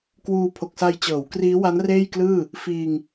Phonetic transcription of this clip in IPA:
kwuː˧pʰo˨˩k̚sa˧j t͡ɕɤː˩˦wkriː˦˥wa˦˥n reː˥˩jklɯː˥˩ | fiː˧ŋ

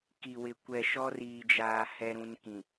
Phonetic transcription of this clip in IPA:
ki˨wɪ˨ kʷɛ˨ ʃɔ˦riː˨d͡ʒaː˨ hɛ˦ɾũ˦nkĩ˨

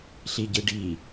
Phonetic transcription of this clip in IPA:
ɬiɟɯɖi

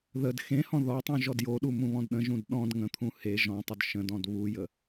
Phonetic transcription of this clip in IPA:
ðəd xẽhɔ̃ ðɔtˤũ ʒɔdjoɗu mũβɔ̃dɗə̃ʒũd ɗɔ̃d ŋə̃t̪ʰũ he ʒɔ̃tˤod ʃə̃dɔ̃d βujə

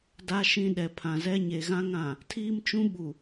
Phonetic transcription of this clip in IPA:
da˦ʃĩ˦ɗɛ˨ pʰã˨zɛ˦ ɲe˨ɣã˦ŋã˨ | tʰiː˦mt͡ʃũ˦ɓu˨

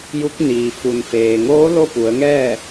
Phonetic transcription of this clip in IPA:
ju˧˥k̚ niː˩fu˩n feː˩ŋoː˧˥ lo˥˨pu˩˧ə̯ŋɛː˥˨

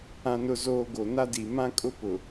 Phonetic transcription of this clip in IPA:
ã˨nʊ˨zoː˨ ɡo˨na˦di˨ mã˦kʼʊ˦pʊ˨

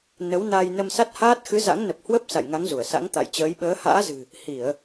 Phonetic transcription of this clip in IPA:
nə˨˦wna˧j nə˧msa˦˥t̚haː˦˥t̚ xɨ˨˦za̰˧˥ŋnə˨˩p̚ hwə˦˥p̚ sa̰˧˨jŋa˨˦ŋzu˧˩ə̯ sa̰˧˥ŋt̪a̰˧˨j t͡ɕəː˨˦jɓəː˨˦ ha̰ː˧˥zɨ̤˨˩ | hi˧˩˨ə̯

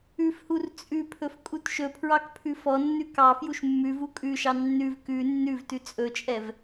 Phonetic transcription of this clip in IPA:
ʉfhur t͡sʼʉpʰɵf kʼutʃɵpʰɹɑk pʰʉfɔnːʉ kɑ fjuʃmːʉvu kʼʉʃɑ nːʉv kʉ nːʉvtʉ t͡sʼɵt͡ʃʼɛv

